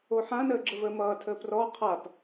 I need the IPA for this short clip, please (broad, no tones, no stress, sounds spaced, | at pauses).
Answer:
o ħ ã n əː ɡ͡ǁ ə v əː m ʌː tʰ əː p r ɔ qʰ a p